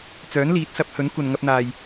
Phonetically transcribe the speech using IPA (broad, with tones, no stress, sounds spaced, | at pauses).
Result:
t͡s œː˨˥ n l iː˨˥ t̚ s ɐ˨˥ p̚ h ɵ˨˥ n kʷ ɐ˨ n ŋ ɐ˧ p̚ n̪ aː˨ j